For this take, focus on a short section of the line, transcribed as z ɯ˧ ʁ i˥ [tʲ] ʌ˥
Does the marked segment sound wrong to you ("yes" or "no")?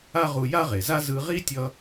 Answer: no